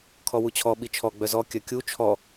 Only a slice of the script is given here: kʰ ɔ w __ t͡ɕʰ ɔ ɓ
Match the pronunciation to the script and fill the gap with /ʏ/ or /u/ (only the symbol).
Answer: u